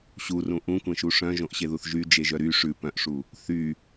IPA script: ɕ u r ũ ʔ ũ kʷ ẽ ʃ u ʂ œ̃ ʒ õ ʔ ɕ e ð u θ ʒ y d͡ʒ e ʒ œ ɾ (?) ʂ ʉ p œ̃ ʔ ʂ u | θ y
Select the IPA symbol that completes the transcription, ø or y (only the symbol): y